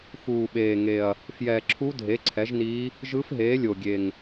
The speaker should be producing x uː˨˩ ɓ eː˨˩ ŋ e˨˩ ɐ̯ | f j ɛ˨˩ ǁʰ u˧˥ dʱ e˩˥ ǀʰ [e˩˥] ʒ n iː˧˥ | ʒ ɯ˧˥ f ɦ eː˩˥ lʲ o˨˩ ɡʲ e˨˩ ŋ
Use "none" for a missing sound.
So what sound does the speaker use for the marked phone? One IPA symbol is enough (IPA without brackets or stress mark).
ɛ˩˥